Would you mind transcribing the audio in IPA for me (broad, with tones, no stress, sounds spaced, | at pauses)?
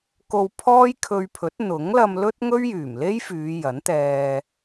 k o˧ w pʰ ɔː˥ j kʰ ɵ˧ ɥ pʰ ɵ˨˥ t̚ n̪ ʊ˨˥ ŋ l ɐ˧ m l ɵ˥ t̚ ŋ ɵ˥ ɥ j yː˨˩ m l e˥ j f yː˨˧ j ɐ˨˥ n t̪ ɛː˧